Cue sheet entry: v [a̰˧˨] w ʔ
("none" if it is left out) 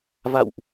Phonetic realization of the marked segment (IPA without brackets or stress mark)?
a̰˧˨